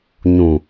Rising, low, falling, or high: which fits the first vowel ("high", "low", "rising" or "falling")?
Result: low